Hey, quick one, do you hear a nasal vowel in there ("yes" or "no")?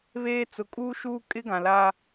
yes